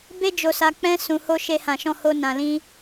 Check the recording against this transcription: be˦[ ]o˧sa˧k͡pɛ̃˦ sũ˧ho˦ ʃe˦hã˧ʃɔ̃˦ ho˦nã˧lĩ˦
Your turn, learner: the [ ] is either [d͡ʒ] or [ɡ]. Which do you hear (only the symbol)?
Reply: d͡ʒ